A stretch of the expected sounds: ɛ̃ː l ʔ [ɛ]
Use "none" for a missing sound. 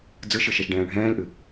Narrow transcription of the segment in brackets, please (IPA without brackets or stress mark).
ɨ